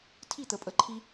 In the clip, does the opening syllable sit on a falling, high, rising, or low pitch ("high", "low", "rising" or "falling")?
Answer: falling